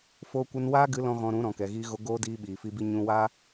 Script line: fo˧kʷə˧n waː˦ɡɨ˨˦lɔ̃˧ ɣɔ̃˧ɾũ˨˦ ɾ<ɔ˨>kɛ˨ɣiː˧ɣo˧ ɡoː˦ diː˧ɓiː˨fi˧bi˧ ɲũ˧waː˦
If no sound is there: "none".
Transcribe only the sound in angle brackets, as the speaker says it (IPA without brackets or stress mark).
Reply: ɔ̃˨